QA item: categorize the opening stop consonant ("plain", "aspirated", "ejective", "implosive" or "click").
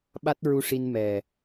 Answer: implosive